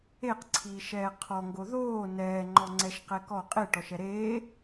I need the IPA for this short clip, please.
eqǀʰiːʃɛː qʰɔŋɡo ðoː nɛːŋ͡ǃɔŋ͡ǀɛʃqɛ kɔ qʼeʈɔʃɛ ɾeː

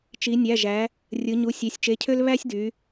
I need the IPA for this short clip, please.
t͡ʃi˩˧nʲæ˩˧˩ʒæ˩˧ | rʲɯ˩˧ɲu˩˧˩ sʲe˩˧sʲt͡ʃe˩˧˩cʰø˥l βæ˥sʲdy˩˧

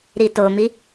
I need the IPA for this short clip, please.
ɾitomi

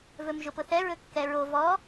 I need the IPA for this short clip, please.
vɵmʒʊpʊθɛ ɹɵkːɛɹo vɔ

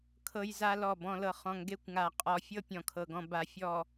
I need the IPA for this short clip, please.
kʰɤ˨jza˨ lɔ˦˨ bɔ̃˨lɤ˨ χɔ̃˨ŋɡe˦kʷŋa˨ qʼɔ˨fʲɤ˦ pʲɔ̃˨kʰɤ˨ɡɔ̃˨ ba˨fʲɔ˨

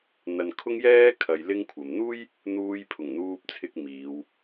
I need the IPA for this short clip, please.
n̪ɐ˨nkʰʊ˥ŋjɛː˥kʰɐ˨j lɪ˥ŋkʷʰɐ˨m n̪uː˥j | n̪uː˥jpʰʊ˨˩ŋn̪uː˥p̚t͡sʰɪ˥k̚ miː˨˧w

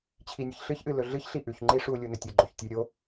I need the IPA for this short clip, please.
t͡ɕʰinʲɨçɬɨçʔɨ lɵɮɨçɬi ʔʉçŋ͡ǃi ʂu lʲunɵtʲɨɡ͡ǃoç tʲʉ ɾʲo

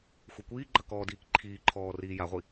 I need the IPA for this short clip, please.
xʷekʷiːɡ͡ǃɐ kɔːdiːkǃʰiːǃʰɔː riːjaʁʷi

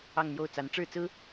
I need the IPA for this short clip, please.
ɑ˥˧ŋn̪jo˥˩ʊ̯ t͡sa˧˥nʈ͡ʂɻ̩˥˩t͡sɹ̩˥

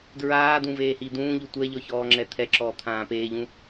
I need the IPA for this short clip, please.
dɹaːd̪ũveːhi d̪ũːʎu tʷɛʎɔçɔːŋ͡ǁɛ t̪ʰɛǁɔːt̪ʰãː peːʎũ

